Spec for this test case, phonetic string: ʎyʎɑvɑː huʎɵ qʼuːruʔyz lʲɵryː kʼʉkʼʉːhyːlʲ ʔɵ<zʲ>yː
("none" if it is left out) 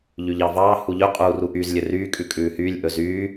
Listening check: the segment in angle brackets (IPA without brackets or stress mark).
z